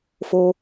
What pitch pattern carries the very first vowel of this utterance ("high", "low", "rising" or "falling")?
high